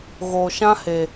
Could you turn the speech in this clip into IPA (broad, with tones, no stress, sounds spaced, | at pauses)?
ɣ o˧ ʃ ã˦ h e˧